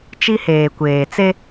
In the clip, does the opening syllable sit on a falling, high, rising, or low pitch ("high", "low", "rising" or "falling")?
high